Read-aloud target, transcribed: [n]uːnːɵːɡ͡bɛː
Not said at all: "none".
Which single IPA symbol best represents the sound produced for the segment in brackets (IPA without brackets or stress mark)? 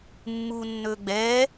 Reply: mː